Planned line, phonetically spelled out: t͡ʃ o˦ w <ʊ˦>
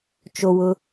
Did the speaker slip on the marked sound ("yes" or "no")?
no